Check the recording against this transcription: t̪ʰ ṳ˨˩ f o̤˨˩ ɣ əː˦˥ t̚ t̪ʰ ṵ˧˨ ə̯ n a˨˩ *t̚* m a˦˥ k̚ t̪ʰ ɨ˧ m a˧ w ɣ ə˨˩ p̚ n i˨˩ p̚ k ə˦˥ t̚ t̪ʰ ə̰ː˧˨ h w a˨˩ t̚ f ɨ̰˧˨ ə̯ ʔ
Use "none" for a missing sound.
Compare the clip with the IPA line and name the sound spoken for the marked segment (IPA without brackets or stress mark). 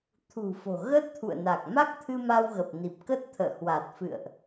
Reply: k̚